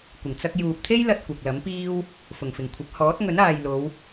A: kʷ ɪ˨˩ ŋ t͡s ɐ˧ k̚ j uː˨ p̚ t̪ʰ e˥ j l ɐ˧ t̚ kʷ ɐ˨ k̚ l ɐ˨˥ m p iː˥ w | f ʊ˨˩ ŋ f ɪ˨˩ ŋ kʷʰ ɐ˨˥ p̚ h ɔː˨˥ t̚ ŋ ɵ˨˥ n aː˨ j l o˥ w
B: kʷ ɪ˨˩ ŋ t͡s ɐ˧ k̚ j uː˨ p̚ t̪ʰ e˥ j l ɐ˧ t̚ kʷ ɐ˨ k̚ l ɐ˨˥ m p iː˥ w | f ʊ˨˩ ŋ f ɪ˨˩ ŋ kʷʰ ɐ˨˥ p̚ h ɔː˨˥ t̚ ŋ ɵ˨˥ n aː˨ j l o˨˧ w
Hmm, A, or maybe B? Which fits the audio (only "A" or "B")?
B